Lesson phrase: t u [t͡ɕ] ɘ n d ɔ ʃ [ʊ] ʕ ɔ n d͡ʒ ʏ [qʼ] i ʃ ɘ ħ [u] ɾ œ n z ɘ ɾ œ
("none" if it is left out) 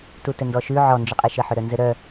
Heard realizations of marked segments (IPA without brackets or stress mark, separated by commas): t, ʉ, qʼ, ʏ